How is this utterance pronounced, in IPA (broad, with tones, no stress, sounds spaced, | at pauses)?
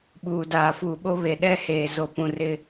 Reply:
ɓ uː˨ d aː˨ f uː˨ ɓ o˦ β e˨ ɗ ɛ˦ h eː˨ z o˨ p ũ˨ r ɪ˦˨